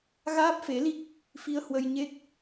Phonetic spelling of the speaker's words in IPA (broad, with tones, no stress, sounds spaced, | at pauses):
ɣ aː˦˥ p̚ f e˨˦ l i˦˥ k̚ | f i˧ ə̯ h w ə˧ j ɲ e˦˥ k̚